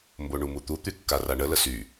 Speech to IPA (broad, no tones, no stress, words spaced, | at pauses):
mboɳumut̪u t̪ykːaraɳə ləsy